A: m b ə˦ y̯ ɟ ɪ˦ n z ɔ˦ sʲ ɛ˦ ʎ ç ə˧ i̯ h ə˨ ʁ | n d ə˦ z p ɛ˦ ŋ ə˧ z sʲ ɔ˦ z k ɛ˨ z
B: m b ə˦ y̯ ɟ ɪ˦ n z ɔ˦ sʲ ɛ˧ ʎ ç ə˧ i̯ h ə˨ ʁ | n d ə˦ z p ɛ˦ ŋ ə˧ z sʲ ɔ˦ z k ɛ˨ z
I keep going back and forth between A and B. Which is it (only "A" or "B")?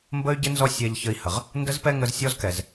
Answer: B